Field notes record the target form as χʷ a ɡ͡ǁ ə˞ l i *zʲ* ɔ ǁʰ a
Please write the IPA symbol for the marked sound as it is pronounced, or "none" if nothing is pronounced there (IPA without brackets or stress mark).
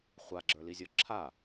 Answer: zʲ